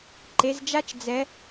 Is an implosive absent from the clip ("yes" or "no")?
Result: yes